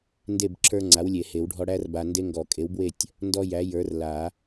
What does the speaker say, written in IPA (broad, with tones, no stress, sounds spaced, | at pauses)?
n d e˥˨ b ǁʰ ə˞˦ ŋ͡ǀ a˨˥ w lʲ e˨˩˦ h e˨˩˦ w ɖʱ ɔ˦ ɽ æ˦ r b a˨ n d e˦ ŋ ɡ ɔ˨˩˦ kʼ e˨˥ w b w e˥˨ tʲ | n d ɔ˦ j æ˨˥ j ə˞˨˥ r l a˨˩˦